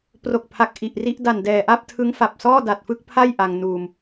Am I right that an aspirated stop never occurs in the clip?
no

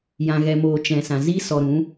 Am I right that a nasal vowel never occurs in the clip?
no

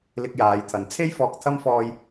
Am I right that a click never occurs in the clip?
yes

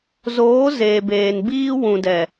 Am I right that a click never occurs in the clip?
yes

